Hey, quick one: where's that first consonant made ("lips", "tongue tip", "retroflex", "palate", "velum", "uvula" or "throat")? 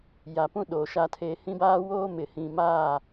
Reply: palate